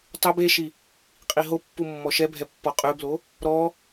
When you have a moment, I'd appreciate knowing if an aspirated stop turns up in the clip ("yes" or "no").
no